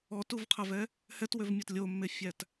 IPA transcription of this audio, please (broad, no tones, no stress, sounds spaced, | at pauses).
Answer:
ɔ t u v qʰ æ v ɛ | h ɛ t w ø v mʲ ɔ t lʲ o mː e fʲ æ t